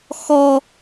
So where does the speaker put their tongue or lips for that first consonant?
velum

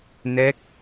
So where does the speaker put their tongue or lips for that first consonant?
tongue tip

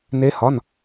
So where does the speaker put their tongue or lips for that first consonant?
tongue tip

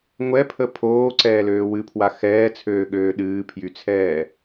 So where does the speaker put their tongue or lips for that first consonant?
velum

